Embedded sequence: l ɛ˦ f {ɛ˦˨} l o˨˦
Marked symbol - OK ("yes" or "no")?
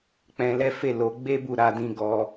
no